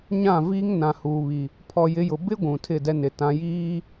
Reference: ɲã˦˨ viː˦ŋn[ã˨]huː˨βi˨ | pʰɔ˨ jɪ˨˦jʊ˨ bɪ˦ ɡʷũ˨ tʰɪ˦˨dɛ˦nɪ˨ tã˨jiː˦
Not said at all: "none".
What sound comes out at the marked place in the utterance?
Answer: ã˨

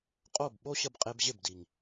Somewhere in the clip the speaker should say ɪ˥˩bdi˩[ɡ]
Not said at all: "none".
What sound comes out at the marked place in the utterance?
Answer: ŋ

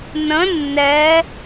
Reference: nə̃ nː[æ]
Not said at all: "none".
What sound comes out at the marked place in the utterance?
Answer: ɛ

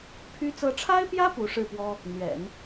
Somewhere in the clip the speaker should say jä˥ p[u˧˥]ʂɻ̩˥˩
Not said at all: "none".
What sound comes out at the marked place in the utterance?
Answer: u˧˥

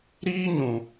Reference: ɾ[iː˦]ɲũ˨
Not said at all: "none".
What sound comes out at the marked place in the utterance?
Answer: iː˦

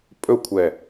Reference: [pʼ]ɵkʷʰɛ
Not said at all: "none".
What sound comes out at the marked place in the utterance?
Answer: pʼ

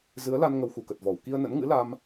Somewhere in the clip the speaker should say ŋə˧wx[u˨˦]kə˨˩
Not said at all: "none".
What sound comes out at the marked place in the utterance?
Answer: u˨˩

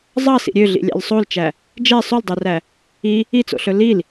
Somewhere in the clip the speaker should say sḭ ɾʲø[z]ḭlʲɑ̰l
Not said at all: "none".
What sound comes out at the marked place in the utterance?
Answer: ɮ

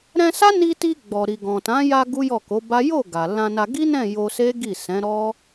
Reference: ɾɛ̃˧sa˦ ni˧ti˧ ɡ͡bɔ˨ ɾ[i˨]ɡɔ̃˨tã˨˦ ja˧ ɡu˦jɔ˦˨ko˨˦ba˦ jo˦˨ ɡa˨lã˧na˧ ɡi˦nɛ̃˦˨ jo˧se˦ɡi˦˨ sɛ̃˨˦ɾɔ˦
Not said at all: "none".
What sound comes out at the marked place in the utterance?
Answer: i˨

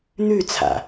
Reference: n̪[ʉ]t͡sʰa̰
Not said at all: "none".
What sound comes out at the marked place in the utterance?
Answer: ʉ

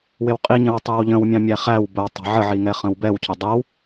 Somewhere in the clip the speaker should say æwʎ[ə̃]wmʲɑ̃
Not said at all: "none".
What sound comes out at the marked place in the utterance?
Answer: ə̃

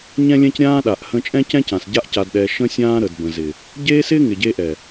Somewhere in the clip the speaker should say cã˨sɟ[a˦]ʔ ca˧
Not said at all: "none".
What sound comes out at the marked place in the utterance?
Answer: a˦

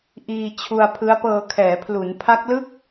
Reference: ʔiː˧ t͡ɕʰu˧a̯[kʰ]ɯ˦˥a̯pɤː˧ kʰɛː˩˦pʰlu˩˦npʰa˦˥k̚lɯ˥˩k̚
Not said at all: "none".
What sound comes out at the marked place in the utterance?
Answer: pʰ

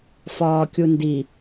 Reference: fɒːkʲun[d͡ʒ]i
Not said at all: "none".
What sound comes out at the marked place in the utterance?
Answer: d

